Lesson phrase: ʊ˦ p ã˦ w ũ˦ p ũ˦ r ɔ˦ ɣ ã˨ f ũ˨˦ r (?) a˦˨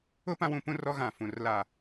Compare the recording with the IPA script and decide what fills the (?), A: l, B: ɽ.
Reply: A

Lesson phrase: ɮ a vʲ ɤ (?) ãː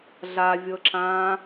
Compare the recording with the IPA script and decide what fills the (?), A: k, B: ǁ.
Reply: B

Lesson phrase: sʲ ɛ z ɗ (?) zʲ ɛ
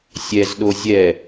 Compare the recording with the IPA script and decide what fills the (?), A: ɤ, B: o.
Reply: B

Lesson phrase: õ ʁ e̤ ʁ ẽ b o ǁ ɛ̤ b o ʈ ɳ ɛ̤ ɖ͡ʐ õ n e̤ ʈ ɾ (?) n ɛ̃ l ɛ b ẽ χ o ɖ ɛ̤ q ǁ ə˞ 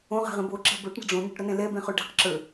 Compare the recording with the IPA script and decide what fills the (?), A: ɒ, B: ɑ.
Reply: A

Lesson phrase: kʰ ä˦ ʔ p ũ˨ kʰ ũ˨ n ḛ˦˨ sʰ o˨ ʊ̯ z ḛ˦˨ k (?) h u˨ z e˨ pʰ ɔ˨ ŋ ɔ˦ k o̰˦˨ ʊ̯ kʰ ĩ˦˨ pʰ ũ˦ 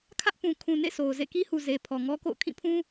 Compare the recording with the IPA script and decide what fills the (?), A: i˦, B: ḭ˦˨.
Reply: A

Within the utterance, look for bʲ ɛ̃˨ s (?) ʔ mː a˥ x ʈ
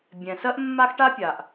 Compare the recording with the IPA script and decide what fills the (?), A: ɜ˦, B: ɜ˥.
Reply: B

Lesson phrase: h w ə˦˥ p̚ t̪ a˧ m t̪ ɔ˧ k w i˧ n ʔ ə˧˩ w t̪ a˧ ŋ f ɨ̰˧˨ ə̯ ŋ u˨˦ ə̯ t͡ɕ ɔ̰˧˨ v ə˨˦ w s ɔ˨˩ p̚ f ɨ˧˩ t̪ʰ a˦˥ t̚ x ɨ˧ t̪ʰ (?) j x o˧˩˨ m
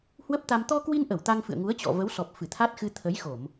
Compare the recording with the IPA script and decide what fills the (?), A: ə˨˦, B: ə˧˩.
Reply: A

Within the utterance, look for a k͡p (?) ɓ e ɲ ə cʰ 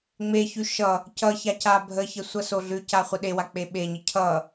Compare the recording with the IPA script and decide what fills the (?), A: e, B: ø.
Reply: A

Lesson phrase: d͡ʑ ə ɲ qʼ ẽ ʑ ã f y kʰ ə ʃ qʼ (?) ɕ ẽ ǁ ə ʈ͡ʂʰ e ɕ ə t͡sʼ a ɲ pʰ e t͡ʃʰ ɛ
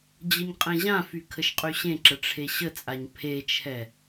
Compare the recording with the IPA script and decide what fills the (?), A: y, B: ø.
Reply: A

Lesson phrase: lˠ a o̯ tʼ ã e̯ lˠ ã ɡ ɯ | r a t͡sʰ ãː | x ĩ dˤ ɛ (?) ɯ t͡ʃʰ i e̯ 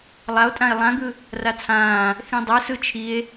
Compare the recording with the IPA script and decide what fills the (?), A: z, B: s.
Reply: B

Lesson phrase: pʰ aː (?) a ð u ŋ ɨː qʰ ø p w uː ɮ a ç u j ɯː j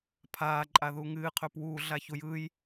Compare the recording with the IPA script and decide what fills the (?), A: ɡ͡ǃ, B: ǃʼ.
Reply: B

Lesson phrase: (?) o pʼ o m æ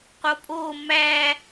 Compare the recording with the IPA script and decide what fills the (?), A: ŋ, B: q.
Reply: B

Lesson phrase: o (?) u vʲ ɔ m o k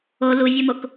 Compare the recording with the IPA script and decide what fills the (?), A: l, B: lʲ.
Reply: A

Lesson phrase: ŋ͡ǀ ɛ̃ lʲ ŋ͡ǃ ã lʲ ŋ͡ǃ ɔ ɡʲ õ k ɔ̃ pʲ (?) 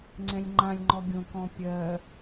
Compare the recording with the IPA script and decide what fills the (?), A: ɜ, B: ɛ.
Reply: A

